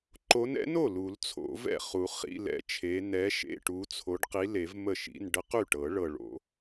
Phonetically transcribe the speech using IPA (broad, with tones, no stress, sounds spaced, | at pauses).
ǃ o˨˦ n ɛ̰˨˦ n o˥˩ l u˨˩˦ l t͡sʰ o̰˨˩˦ v ɛ̰˥˩ χ u˨˩˦ χ ḭ˧˥˧ l ɛ̰˦˥ t͡ʃʰ e˨˦ n ɛ˨˦ ʃ ḛ˧˥˧ ʈ u˨˦ t͡sʰ o˨˦ ɖ q i˨˦ l e˨˩˦ v m ə˥˩ ʃ ḭ˧˥˧ n ɖ ə˦˥ q y˥˩ ʈ ɤ˨˩˦ ɭ ɤ˨˩ ɭ o̰˨˩˦